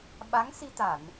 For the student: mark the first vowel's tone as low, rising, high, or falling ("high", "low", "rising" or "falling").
rising